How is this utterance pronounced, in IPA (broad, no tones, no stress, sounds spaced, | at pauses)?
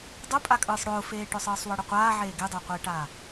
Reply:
dˤ ʊ pʼ a kʼ ɯː sˤ ɽ ʊː f eː ʈ ʊ sˤ ɯː sˤ w ɤ ɽ ə qʷ aː ʕ eː ɡ e dˤ ʊː qʷ eː ʈ aː